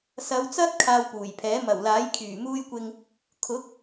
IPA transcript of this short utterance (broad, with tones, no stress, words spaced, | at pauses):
sɐ˨˧wt͡sɐ˥t̚ kʰaː˧wpuː˨˩jpʰɛː˨˥ mɐ˨˩wlaː˨˥j kʰyː˨˩muː˧j kʷɪ˧ŋ | kʰʊ˨˥k̚